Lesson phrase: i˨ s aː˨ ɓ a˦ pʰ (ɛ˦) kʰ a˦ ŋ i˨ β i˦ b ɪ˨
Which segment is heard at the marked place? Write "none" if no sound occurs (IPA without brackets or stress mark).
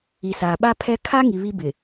ɛ˦